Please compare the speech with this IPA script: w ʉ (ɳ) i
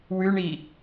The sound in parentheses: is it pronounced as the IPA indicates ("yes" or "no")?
yes